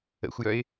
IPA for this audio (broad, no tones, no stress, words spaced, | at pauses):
ə̰xʷjœɪ̯